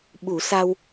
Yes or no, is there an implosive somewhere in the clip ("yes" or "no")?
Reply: yes